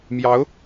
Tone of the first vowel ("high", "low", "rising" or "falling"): rising